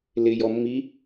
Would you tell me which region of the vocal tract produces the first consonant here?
tongue tip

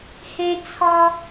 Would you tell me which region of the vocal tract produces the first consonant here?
throat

